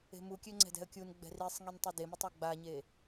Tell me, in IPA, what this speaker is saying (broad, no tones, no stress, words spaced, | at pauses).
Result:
e̤mukʲø ŋ͡ǀɛ̤dɛ̤ə̯kʲunɡ͡bɛ̤ risˤŋin tˤidemitˤ aɡ͡baɲe